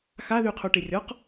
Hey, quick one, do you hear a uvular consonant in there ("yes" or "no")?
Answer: yes